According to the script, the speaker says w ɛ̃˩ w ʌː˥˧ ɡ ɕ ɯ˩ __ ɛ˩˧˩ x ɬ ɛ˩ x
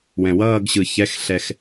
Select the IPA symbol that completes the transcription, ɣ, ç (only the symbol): ç